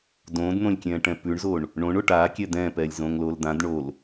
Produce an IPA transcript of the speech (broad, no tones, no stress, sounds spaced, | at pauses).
d õː d n̪ õ lʲ kʲ ɛ̃ː ʈ ɛ̃ p ʉ ɳ z o ɳ | ɳ õ ɳ o ʈ aː kʲ ɛ d̪ ɛ̃ː p ɛː lʲ z õː ŋ l oː l d̪ ã d ɳ o l